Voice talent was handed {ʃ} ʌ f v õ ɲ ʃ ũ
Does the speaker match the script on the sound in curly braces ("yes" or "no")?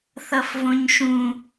no